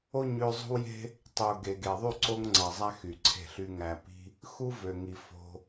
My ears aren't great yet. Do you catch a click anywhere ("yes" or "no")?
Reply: yes